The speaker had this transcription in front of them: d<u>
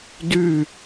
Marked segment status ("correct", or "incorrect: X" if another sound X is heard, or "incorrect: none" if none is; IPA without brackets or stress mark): incorrect: ʉ